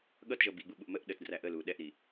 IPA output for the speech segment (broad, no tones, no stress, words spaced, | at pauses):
ɠʌtʒʌ biɡ͡buɓuʔ məʔ ɗətdræ ʔəlu ɗɛʔɾi